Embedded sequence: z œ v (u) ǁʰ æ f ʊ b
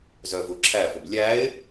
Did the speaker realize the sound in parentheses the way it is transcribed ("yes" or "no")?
yes